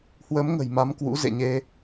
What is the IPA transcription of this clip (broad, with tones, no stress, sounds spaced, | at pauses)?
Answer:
h w ə˨˦ m ŋ ə̤˨˩ j m a˨˦ m k w ṵ˧˥ z ḛ˧˨ ɲ e˧